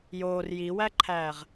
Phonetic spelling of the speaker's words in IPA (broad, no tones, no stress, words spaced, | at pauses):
joːr jiwæǃʰæːʁ